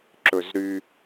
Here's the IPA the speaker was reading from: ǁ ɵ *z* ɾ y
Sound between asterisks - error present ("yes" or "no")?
no